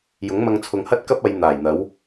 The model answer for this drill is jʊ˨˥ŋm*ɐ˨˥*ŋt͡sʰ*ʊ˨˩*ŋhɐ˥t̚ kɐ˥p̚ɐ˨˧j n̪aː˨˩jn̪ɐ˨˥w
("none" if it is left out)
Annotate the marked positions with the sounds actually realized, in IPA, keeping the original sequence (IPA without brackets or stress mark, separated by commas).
ɐ˧, ʊ˨˧